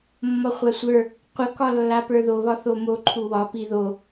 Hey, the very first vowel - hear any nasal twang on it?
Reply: no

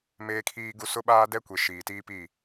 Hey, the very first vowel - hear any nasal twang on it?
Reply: no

